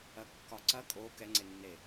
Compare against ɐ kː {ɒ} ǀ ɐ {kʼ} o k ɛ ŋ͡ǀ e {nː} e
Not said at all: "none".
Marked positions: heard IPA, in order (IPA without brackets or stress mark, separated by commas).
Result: ɒ, kʼ, nː